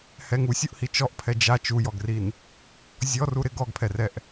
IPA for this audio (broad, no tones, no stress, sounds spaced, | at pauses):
h ɛ ŋ u sʲ u ʔ h i t͡ʃ ɔ ʔ pʰ ɛ d͡ʒ a t͡ʃ u j ɔ ɡ r i n | zʲ ɔ r u ɾ ɪ ɡ ɔ ɡ pʰ ɛ r ɛ ʔ